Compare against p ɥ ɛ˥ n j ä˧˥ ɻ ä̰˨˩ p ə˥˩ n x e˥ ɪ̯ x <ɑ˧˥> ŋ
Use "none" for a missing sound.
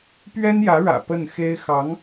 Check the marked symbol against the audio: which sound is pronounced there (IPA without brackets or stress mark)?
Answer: ɑ˧˥